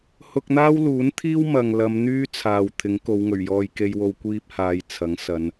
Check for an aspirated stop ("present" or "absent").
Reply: present